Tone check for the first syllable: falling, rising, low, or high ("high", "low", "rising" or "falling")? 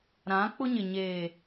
rising